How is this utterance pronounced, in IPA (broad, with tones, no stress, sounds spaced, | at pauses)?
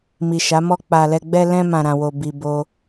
m i˨ ʃ a˨˦ m ɔ˧ k͡p a˨ l ɛ˧ ɡ͡b ɛ˧ l ɛ̃˧ m ã˨ ɾ ã˨ w o˨ b i˧ b o˦